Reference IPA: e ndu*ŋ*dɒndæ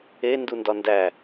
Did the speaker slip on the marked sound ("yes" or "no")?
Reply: yes